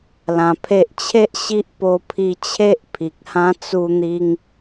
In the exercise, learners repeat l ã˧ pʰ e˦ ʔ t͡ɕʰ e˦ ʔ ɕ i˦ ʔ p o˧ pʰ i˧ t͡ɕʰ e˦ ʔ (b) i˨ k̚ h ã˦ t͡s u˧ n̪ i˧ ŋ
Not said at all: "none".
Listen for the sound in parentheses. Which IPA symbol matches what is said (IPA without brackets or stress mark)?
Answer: pʰ